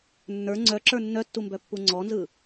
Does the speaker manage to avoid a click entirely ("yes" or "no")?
no